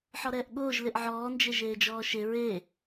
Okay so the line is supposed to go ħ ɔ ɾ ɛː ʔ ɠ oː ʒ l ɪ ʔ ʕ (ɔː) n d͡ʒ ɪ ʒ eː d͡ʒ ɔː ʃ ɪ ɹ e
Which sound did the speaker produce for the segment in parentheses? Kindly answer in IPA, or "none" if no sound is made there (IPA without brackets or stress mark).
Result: ɔː